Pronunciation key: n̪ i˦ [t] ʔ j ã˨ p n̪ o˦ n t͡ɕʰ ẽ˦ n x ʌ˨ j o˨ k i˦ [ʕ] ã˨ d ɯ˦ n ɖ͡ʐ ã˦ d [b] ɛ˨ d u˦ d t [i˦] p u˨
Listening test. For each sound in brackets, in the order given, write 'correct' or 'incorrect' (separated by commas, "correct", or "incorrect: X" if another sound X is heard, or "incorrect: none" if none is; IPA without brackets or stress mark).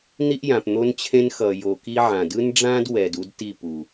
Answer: incorrect: none, correct, incorrect: w, incorrect: i˦˨